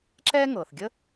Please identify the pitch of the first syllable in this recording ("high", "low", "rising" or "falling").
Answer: high